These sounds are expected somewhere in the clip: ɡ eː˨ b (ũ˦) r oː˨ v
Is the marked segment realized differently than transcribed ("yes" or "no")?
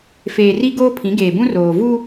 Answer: no